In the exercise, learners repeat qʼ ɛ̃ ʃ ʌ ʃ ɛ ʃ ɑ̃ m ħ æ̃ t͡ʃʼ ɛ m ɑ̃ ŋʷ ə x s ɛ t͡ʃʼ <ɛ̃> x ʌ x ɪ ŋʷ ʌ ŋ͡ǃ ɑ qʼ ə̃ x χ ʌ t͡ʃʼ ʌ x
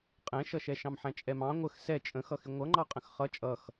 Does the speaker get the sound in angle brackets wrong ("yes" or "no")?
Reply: yes